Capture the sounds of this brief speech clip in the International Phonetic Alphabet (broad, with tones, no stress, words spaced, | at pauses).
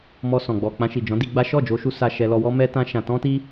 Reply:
mɔ˧sɔ̃˨ ɡ͡bɔ˨ k͡pã˧ʃi˨d͡ʒɔ̃˨˦di˧ ɡ͡ba˦ ʃɔ˦˨d͡ʒo˧ʃu˧ sa˧ʃɛ˧lɔ˧wɔ˦ mɛ˦tã˦ʃã˧ tɔ̃˦ti˦